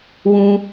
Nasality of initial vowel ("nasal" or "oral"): nasal